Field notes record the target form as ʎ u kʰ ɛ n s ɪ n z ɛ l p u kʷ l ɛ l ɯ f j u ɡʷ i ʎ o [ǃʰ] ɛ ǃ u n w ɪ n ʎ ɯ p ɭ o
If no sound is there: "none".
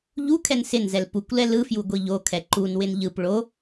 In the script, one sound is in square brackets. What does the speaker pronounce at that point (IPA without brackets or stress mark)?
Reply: kʰ